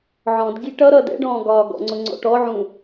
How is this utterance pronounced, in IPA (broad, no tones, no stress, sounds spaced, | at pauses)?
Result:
ʕ ɔ̃ d ɡ i ʈ ʌ ɾ ʌ d ɛ̰ ɖ ɔ̃ː ɡ ɒː ɡ ɔ̰ ŋ͡ǀ ʊ ŋ͡ǀ ɔ̰ ʈ ɔ ʕ ũ